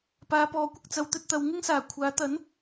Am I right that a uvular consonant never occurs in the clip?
yes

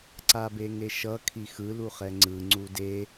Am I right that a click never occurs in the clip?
no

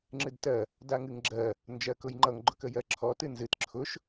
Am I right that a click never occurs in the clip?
no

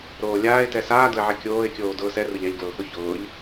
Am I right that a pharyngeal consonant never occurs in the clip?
no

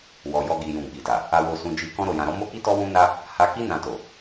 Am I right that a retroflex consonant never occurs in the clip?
yes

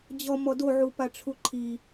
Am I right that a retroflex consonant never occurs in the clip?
no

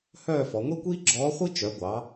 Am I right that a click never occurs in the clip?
no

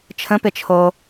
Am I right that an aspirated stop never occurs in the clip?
no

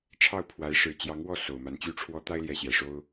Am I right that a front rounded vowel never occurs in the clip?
no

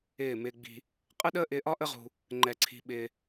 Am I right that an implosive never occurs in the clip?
no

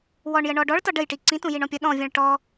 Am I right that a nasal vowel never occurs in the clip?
no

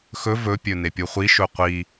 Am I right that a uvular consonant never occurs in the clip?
no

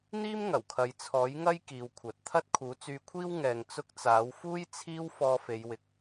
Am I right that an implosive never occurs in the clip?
yes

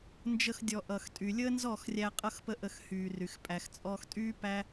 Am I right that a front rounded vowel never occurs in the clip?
no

